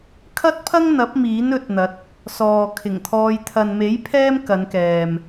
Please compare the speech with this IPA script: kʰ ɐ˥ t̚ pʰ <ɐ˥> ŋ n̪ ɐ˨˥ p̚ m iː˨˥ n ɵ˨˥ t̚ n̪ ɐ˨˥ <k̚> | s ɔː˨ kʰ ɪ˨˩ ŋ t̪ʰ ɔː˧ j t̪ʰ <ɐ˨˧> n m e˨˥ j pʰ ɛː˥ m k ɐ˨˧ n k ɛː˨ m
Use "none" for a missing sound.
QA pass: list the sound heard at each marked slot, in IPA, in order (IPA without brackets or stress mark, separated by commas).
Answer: ɐ˥, t̚, ɐ˨